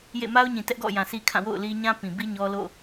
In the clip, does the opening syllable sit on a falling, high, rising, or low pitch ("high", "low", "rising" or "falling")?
falling